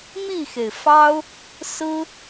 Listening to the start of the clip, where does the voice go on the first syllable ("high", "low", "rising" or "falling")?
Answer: falling